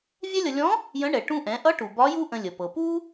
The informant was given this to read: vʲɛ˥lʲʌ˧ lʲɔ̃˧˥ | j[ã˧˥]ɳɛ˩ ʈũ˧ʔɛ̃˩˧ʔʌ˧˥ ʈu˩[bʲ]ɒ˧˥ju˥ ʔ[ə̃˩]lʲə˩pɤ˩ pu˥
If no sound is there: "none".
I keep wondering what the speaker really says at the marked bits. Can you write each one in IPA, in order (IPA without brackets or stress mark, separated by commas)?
ə̃˧˥, b, ə̃˧